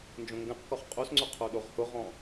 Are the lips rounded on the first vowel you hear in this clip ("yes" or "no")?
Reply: yes